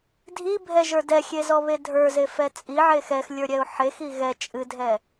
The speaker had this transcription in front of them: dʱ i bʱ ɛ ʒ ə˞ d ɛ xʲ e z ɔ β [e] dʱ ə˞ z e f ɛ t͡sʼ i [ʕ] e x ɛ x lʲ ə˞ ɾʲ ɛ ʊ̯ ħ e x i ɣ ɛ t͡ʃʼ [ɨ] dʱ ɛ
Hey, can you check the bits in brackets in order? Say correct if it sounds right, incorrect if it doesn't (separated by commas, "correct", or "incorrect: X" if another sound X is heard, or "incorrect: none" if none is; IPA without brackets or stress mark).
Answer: correct, correct, correct